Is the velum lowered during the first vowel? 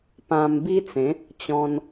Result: yes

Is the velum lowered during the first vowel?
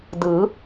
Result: no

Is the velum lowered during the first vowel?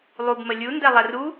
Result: no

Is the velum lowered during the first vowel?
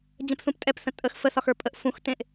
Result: yes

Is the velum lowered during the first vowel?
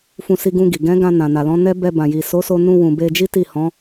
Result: yes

